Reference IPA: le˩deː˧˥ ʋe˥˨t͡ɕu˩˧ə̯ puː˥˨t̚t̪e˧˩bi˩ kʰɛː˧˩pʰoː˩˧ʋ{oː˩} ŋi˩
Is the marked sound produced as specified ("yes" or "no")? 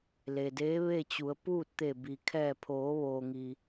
yes